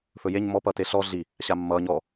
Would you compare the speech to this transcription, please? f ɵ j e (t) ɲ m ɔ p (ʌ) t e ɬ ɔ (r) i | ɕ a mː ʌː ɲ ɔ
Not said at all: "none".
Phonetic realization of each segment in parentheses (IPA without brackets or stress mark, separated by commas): none, ʌ, ɮ